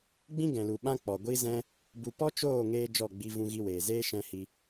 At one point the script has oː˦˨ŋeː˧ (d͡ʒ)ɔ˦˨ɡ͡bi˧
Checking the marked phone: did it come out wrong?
no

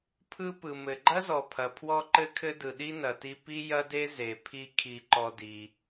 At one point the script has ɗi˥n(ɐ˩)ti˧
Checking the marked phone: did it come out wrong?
no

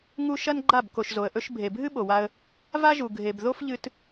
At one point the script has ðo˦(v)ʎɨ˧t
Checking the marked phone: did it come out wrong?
yes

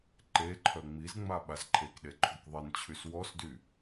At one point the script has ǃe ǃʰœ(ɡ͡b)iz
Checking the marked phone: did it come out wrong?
yes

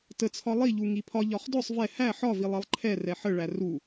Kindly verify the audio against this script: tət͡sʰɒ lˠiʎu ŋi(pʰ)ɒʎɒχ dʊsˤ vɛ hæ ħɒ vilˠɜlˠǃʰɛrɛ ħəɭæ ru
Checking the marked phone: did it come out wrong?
no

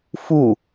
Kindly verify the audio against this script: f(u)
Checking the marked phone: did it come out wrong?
no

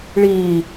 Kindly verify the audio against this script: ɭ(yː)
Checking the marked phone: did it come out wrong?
yes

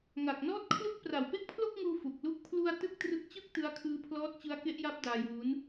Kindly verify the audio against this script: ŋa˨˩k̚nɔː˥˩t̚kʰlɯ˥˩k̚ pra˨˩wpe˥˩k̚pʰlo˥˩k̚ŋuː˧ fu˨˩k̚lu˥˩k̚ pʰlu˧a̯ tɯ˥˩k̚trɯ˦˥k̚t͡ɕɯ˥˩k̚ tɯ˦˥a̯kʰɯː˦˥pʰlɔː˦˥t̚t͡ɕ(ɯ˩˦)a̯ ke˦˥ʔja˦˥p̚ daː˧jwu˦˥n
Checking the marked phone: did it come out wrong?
yes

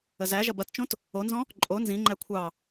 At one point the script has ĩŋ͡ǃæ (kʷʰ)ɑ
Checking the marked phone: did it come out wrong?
no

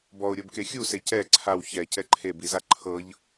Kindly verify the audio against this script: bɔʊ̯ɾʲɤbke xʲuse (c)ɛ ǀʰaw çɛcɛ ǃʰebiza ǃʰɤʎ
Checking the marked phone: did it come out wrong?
no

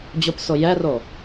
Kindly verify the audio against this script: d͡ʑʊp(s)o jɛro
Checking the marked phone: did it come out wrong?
no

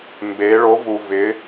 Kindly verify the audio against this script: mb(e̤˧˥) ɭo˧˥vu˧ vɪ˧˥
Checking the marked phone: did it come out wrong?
yes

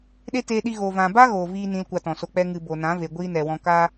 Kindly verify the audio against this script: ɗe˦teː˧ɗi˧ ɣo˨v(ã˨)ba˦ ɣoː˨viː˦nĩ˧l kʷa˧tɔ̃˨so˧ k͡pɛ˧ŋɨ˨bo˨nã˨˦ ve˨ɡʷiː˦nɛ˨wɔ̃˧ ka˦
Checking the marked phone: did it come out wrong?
no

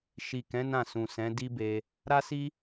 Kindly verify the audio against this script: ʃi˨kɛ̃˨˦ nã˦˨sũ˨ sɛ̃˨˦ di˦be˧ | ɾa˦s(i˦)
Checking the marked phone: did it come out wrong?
no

